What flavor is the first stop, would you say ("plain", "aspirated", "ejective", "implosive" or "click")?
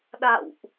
implosive